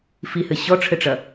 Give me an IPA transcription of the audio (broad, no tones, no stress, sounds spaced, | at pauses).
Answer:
f i h ɘ ɕ ɔ ʈ͡ʂʰ ɘ ʈ͡ʂ ɐ